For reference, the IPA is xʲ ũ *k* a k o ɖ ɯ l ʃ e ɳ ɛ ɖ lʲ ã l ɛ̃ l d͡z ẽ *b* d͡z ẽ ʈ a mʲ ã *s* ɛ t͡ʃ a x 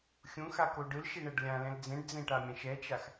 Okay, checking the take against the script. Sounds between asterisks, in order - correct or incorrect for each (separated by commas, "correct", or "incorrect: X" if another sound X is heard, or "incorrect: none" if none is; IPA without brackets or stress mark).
incorrect: x, incorrect: ɖ, incorrect: ʃ